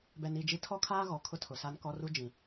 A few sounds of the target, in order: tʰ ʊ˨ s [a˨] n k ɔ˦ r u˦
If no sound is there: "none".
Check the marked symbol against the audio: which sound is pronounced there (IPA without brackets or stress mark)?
a˦